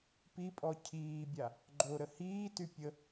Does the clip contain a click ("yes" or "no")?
yes